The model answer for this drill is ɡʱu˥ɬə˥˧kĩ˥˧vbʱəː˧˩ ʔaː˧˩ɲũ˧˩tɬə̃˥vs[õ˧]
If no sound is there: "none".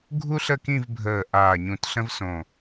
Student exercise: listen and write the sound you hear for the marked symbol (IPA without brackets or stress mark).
õ˧˩